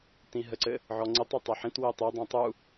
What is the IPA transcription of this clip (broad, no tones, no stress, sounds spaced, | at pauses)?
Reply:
t ĩ ɦ ə ǀ ɘ | ʕ ɔ ŋ͡ǀ i tˤ i tˤ ɛ ħ ĩ t w i tˤ i dˤ ĩ tˤ u